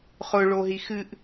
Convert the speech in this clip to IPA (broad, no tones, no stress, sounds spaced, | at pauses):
χ ʊ ɭ o ɦ i x ɨ ʔ